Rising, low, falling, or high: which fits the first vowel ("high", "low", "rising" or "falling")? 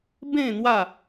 falling